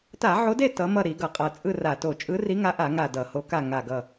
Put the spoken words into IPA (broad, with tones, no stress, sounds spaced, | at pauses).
t a˧˩˧ ʕ o˨˦ d e˦˨ t ʌ˨˦ m ʌ˦˨ ɾ i˧˩˧ ɡ ʌ˨˩ qʼ ʌ˨˩ t͡sʼ ɯ˦˨ r a˧˩˧ t o˨˩ t͡ʃʼ ɯ˨˦ r i˨˦ ŋ a˨˦ ʔ a˧˩˧ ŋ a˦˨ d ʌ˧˩˧ h o˨˦ k a˦˨ ŋ a˨˩ ɡ ʌ˨˩